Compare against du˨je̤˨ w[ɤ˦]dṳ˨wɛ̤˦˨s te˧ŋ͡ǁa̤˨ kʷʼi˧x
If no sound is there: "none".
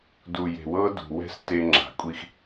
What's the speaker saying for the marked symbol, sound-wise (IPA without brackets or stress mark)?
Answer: ɤ˦